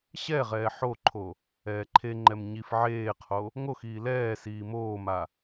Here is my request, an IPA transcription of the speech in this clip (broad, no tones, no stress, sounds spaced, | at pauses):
ɕ ɛ ʁ ɛː ħ o ǃʰ o | ɛː ǃʰ e ŋ͡ǃ ɛ m ɲ i f ʕ eː qʰ o | ŋ o x iː l ɛː s iː m oː m a